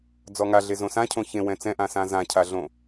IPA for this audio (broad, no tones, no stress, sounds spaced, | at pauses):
d͡z ɔ ŋ a ɮ e z õ s ã cʰ õ ç ẽ w ɛ̃ t͡s ɛ̃ ʔ ã s ã z ã cʰ a ɮ õ